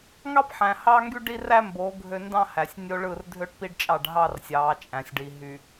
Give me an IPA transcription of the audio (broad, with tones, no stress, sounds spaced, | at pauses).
ŋ ɑ˦ p ħ æ̃˨ h ɑː˦ ŋ ɡ y˦ ɖ i˦ r æ˦ m b oː˨˦ ɡʱ ø˦ n d ɑ̃˦ h æ˨ sʲ nʲ o˦ ɭ ɯ˦˨ r dʱ ø˦ ʈ p i˦ ɖ t͡ʃʼ ɑ˦˨ ɖ ɦ ɑ˦ r sʲ ɑː˨˦ t͡ʃʼ æ̃˨ sʲ ɖ i˨ ɦ y˨